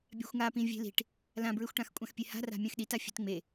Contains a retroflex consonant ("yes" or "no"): yes